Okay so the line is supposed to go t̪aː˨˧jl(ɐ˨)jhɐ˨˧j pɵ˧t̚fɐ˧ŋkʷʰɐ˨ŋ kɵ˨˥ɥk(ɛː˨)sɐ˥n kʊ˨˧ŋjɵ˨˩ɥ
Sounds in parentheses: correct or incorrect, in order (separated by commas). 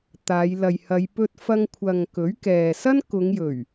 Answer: correct, correct